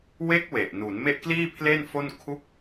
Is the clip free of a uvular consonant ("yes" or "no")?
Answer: yes